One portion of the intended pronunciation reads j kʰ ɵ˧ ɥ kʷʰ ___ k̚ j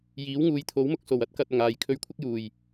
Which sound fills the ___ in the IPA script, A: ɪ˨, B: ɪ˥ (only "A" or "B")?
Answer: B